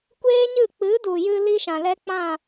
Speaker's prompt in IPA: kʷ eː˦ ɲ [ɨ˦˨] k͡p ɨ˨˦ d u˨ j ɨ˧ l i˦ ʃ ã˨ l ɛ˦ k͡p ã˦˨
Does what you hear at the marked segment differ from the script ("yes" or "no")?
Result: no